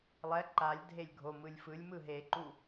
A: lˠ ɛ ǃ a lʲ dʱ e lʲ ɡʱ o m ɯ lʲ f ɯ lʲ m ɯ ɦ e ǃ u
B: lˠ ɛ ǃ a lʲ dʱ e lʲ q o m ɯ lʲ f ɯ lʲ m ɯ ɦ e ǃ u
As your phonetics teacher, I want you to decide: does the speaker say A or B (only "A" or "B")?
A